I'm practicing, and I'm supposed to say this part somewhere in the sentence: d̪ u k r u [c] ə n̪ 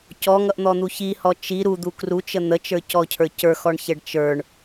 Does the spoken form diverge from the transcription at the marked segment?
yes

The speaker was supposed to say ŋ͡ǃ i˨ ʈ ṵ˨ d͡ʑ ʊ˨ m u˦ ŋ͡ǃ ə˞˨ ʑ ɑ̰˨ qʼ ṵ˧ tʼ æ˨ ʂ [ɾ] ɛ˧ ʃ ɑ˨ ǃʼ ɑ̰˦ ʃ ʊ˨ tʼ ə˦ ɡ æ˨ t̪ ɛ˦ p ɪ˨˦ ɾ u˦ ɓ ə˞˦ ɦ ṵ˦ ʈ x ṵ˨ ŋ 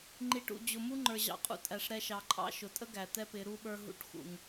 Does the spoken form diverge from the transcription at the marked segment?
no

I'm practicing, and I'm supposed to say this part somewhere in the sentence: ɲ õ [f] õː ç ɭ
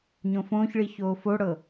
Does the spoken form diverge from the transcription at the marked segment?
no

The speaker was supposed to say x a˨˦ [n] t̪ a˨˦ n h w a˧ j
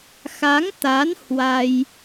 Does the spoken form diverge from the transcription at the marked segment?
yes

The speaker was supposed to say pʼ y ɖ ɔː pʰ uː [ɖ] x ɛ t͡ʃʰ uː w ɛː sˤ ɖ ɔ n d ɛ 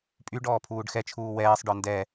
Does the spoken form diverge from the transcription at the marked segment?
no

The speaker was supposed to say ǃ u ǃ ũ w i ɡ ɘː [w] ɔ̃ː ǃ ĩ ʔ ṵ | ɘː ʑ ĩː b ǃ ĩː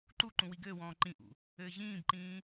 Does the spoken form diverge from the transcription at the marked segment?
no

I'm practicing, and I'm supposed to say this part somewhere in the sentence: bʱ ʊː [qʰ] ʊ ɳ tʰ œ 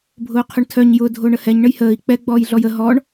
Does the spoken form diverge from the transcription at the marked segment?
no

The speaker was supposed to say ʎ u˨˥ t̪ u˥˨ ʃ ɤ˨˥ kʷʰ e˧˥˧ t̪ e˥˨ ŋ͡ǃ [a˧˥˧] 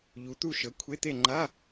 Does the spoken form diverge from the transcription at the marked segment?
no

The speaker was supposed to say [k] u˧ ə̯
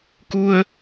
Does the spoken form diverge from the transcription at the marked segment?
no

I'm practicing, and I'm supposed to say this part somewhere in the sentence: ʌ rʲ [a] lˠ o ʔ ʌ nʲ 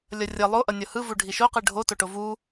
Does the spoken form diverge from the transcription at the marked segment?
yes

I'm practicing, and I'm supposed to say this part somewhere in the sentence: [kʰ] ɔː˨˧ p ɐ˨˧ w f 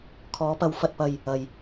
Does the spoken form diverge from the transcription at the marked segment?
no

